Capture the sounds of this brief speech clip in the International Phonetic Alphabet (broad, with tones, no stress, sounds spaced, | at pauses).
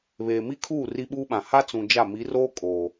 β eː˨ m i˦ kʰ uː˦˨ r i˦ ɓ uː˦ ɓ ã˨ h a˦ t͡s ũ˨ d͡ʒ a˦˨ m i˨˦ r oː˦ kʼ oː˨